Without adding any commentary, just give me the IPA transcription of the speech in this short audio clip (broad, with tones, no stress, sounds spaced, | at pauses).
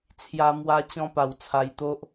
t͡sʰ j a˧ m w a˧ t͡ɕ ɔ̃˦ p a˨˩ w t͡sʰ a˧ j t̪ o˦ ʔ